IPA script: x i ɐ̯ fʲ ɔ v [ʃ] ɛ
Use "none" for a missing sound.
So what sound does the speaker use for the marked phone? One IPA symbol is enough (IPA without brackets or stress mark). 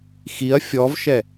ʃ